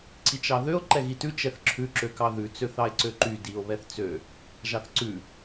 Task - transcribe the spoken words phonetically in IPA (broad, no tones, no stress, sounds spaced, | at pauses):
ǀ i t͡ʃ ɑ ð ø o̯ ǃ ɛ ɣ i t ʉ t͡ʃ ɛ θ ǁʰ ʉ ǁ ø k ɑ ð ʉ t͡s ø θ ɑ e̯ ǀ ø ǃ y d i o̯ β ɛ θ t͡s ø | ʒ ɑ θ ǀ ʉ